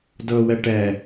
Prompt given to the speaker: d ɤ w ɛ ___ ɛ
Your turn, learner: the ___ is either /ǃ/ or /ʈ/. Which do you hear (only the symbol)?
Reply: ʈ